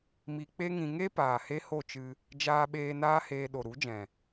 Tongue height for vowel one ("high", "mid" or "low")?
high